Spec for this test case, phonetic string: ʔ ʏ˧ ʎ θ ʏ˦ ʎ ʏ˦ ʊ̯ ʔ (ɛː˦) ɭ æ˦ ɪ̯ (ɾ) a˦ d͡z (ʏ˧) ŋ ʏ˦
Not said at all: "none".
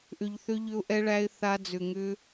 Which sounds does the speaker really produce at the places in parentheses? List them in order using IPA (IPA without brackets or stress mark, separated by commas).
ɛ˦, θ, ʏ˧